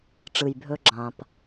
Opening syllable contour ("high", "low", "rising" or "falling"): low